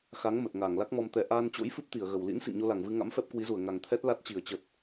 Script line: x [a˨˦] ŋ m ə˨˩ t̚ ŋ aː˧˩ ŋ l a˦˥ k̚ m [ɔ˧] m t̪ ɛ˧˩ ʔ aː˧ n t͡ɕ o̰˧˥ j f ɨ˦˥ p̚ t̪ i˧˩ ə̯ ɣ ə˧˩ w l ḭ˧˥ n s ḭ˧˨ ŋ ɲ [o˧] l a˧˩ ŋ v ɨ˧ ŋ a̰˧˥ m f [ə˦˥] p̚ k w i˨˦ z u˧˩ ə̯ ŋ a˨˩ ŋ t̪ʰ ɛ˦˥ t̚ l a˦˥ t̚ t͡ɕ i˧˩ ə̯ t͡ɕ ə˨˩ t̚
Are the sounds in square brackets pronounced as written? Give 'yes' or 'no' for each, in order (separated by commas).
yes, yes, yes, no